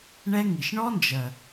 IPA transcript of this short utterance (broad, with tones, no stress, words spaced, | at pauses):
ɳɛ˦ŋi˨ʃ ɳɔ˦nd͡ʒɜ˨